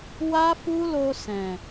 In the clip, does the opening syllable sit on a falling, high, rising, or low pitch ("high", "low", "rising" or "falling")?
high